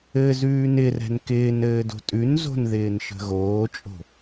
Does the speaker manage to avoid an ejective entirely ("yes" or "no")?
no